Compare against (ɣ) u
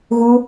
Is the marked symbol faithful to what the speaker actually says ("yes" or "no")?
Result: yes